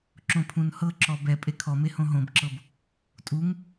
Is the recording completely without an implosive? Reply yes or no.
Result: yes